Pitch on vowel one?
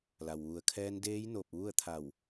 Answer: low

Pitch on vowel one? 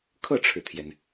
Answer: falling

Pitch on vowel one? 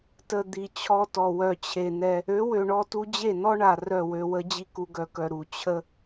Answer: low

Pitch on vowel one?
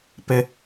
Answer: high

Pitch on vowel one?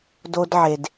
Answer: high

